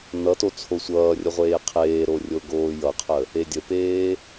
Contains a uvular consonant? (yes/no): yes